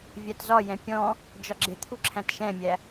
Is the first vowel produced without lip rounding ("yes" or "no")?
yes